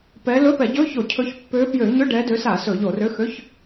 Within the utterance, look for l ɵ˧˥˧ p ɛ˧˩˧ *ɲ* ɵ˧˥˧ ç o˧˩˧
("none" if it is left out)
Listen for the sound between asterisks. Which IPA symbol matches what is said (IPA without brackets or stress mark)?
ɟ